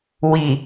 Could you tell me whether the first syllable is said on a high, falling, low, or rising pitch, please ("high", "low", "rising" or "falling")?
low